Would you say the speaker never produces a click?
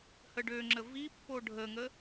no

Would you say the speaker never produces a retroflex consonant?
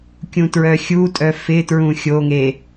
yes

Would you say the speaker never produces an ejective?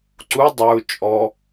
no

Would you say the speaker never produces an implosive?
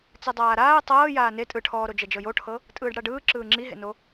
yes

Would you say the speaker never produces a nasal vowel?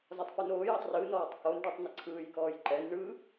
yes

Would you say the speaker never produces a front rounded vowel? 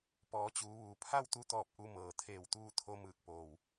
yes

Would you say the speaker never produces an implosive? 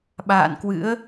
no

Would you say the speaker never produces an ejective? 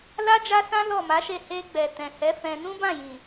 yes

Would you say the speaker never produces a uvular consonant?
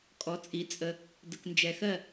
yes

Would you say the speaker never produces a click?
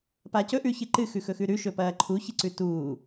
no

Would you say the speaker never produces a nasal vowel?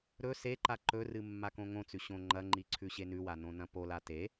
no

